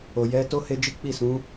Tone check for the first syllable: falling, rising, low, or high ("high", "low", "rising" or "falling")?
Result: low